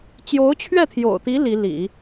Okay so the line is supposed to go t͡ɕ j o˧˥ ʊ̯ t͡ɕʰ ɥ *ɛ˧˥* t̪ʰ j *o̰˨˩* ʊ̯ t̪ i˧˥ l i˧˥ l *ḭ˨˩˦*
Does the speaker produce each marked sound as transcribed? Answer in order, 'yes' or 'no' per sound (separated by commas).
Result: no, yes, yes